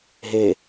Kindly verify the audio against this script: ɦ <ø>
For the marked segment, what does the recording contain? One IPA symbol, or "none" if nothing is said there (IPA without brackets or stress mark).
e